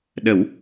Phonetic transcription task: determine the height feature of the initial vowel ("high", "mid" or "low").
mid